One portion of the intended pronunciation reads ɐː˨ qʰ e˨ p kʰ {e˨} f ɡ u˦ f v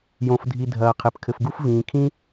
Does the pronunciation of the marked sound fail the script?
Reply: yes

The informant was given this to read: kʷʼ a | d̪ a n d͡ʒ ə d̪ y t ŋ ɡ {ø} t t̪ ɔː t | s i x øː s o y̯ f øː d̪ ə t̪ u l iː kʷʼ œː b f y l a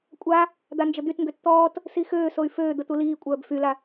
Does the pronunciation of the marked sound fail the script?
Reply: no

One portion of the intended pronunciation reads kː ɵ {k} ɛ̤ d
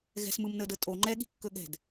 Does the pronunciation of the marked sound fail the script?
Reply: yes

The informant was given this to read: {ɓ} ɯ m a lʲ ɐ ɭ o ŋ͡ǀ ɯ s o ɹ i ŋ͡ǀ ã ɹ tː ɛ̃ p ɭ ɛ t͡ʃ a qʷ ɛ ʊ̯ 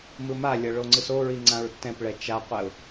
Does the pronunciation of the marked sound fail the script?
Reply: yes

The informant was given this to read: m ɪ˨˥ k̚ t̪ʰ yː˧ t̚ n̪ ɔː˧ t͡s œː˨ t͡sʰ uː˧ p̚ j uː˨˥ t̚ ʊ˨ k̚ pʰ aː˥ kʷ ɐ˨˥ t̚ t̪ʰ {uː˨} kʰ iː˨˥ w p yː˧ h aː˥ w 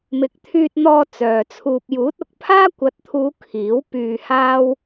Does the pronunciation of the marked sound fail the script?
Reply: yes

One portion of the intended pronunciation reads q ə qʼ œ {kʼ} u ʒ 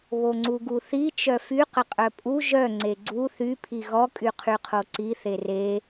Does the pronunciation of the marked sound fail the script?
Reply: yes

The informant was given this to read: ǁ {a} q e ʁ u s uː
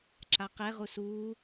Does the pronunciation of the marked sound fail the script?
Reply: no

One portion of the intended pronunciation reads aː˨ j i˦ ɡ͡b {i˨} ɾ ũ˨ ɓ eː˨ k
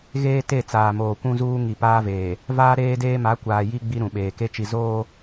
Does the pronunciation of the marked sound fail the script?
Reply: yes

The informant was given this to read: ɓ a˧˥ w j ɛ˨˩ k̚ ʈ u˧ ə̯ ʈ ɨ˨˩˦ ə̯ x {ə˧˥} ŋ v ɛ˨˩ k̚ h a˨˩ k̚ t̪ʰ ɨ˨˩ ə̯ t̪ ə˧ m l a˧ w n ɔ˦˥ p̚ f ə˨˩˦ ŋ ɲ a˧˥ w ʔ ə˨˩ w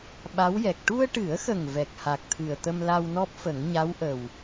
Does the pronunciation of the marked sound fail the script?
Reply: yes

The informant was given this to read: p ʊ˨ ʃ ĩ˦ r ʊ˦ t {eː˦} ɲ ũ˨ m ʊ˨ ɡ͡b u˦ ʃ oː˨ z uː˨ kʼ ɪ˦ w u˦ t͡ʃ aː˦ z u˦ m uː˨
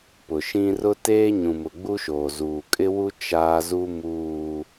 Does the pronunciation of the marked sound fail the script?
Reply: no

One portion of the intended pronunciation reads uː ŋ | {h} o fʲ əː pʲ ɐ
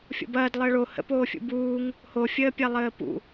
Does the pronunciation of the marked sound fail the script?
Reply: no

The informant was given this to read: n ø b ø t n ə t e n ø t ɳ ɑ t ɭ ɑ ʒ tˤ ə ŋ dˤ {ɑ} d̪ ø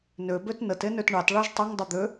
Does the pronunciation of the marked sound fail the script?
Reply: yes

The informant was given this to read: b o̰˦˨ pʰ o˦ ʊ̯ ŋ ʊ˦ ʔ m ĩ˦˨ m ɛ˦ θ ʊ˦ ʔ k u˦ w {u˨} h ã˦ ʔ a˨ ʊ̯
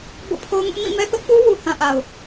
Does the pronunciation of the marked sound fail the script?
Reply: no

